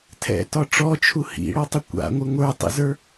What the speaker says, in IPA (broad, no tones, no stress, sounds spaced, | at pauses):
tʰ ɛ̰ t ɒ ʈ͡ʂ ɔ t͡ʃʰ u h ḭ ɽ ɔ tˤ ɪ kʷ a̰ ŋʷ ɪ ŋʷ ə˞ tˤ ḭ z ə˞